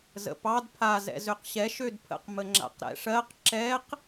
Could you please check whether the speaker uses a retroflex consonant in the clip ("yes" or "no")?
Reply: yes